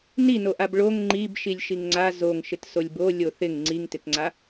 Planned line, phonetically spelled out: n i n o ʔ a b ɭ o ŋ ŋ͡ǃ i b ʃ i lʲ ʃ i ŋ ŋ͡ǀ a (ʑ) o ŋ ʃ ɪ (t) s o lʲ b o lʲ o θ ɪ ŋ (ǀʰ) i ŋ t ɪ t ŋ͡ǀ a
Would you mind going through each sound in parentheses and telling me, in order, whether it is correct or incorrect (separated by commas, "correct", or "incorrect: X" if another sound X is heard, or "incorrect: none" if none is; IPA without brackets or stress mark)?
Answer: incorrect: z, correct, incorrect: ŋ͡ǀ